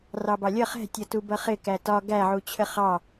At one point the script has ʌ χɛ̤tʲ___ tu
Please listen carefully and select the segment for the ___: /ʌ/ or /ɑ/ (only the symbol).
ʌ